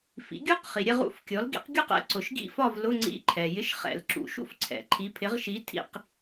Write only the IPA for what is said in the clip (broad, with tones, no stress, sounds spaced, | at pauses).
f ḭ˩˥ ɡʲ u˦˥ q χ i˩ ɾʲ ɛ˥˨ ʁ ṵ˥˨ f kʲ ɔ˩˥ l ɡ ḭ˩˥ q ɡʲ u˥˨ q ɛ̰˩˥ ǀ ʊ˩ ʃ ɡ ḭ˥˨ f ɒ˥˨ v l ʊ˧˥˧ ŋ͡ǀ ḭ˧˥˧ ǃʰ ɛ˩ j ɪ˧˥˧ ʃ χ ɛ̰˧˩˧ l ǁ ṵ˩˥ ʃ ṵ˥˨ f ǀʰ ɛ̰˩ ǃʰ i˩˥ pʰ ɪ˩˥ ʁ ʃ i˩˥ tʰ ḭ˧˩˧ q